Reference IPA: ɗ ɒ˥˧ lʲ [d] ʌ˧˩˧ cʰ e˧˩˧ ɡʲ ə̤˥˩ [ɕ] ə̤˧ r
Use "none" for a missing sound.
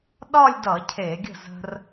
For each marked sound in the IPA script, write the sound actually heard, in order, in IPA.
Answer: d, z

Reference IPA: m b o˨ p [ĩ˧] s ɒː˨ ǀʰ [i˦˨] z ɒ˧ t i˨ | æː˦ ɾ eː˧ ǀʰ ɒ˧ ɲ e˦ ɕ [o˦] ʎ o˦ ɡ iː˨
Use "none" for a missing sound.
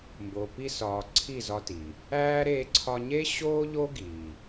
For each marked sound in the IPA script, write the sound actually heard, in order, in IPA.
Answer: i˧, i˦˨, oː˦

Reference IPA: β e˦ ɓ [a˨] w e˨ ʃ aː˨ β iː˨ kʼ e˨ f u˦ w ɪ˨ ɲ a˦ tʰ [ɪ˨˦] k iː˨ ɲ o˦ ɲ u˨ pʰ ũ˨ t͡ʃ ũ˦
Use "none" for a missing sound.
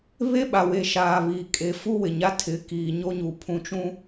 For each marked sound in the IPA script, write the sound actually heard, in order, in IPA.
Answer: a˨, ɪ˨˦

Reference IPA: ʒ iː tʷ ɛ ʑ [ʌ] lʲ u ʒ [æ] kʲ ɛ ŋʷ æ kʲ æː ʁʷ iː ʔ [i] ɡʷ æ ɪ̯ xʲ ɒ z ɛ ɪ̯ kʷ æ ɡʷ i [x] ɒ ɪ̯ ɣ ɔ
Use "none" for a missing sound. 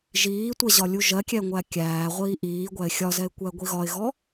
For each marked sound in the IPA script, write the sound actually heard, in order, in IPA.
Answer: ɒ, ɜ, iː, ɣ

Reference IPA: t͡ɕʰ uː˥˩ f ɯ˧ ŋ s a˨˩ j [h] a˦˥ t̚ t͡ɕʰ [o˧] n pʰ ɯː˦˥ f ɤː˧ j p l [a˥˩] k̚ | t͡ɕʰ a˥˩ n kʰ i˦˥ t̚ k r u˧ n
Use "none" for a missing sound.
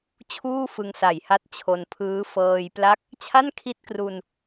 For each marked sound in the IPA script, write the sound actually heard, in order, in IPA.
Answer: h, o˧, a˦˥

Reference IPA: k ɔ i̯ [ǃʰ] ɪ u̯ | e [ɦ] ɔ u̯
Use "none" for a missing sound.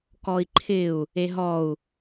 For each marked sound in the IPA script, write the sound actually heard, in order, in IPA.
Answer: ǃʰ, ɦ

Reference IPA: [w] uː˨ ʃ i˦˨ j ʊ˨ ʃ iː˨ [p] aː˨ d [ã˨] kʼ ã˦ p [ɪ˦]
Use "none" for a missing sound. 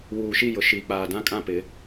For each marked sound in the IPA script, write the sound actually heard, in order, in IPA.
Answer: w, k͡p, ã˦, ɪ˨˦

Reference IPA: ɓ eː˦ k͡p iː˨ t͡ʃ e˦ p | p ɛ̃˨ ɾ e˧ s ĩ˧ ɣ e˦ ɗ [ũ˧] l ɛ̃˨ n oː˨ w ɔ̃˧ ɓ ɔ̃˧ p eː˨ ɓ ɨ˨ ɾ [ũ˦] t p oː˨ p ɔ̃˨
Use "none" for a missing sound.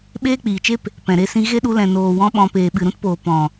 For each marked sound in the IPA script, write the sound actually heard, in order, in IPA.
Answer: u˧, ũ˦

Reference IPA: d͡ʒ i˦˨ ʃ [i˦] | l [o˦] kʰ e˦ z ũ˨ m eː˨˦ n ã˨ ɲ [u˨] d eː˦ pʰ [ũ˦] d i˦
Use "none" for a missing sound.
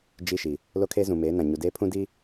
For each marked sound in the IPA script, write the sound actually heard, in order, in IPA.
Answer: i˨, o˦, u˨, ũ˦

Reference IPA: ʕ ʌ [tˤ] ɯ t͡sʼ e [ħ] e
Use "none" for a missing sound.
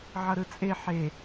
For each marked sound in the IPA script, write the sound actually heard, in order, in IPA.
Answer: ɾ, ħ

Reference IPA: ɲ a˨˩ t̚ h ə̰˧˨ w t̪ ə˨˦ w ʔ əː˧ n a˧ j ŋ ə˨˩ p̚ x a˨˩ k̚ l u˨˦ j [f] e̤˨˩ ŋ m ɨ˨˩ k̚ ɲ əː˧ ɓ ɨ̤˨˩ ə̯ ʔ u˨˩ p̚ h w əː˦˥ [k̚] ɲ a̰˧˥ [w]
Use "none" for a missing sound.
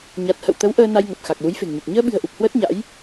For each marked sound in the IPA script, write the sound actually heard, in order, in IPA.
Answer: f, t̚, j

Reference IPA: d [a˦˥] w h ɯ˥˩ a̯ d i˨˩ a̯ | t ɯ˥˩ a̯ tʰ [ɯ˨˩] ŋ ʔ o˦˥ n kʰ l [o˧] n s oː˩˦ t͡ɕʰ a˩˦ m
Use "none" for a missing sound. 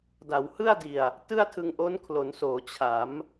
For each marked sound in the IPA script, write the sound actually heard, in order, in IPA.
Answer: a˩˦, ɯ˧, o˩˦

